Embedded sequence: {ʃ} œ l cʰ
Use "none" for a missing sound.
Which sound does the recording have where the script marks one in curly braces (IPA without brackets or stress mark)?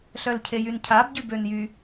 ɬ